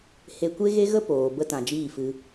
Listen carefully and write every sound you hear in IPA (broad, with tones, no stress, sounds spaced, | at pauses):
h e˧ kʷ e˦ ɣ e˦ ɣ ə˦ p oː˨ b ə˧ t ã˨ d͡ʒ iː˦˨ f ɨ˧